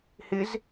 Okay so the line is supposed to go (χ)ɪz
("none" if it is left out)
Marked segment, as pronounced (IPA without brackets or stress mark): h